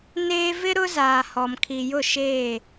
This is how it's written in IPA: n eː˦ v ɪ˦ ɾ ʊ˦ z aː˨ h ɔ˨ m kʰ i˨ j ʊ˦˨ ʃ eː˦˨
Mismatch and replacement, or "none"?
none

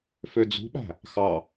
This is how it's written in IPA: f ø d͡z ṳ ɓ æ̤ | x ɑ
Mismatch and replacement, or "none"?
none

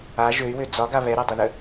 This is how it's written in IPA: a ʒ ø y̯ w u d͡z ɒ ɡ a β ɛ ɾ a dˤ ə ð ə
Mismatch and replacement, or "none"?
u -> ø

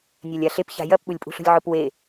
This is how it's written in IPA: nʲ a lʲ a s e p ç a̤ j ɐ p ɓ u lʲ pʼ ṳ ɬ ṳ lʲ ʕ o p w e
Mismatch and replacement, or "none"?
s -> ɬ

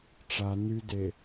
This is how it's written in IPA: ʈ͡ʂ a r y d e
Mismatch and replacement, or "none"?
r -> n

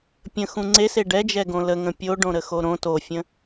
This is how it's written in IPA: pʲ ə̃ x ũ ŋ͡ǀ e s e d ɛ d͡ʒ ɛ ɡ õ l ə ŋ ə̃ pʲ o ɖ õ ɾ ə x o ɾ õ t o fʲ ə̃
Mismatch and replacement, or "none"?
d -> ɖ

